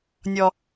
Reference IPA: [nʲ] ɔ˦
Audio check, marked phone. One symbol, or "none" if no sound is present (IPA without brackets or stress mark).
nʲ